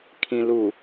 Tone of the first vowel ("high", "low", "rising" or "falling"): low